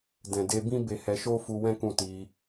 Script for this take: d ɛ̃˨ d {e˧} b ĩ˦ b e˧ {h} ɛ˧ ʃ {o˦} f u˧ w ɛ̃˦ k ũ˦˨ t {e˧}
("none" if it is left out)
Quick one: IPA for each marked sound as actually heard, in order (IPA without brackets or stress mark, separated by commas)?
e˧, h, o˦, i˧